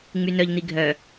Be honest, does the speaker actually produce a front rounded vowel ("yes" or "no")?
yes